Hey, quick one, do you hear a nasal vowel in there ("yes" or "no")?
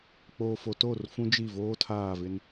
yes